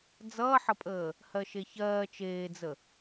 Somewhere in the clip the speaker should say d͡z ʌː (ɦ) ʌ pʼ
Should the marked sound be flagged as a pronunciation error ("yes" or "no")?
yes